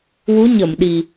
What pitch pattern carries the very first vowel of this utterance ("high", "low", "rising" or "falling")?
rising